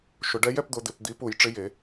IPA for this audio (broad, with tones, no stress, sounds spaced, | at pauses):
ʃ ʊ˨˩˦ ɖ ɛ˧˥ j ɛ˥˧ p d̪ ʊ˧˥ d̪ ɪ˨˩˦ p d̪ iː˧˥ p u˨˩˦ j ʈ͡ʂ ɪ˧˥ j e˨˩˦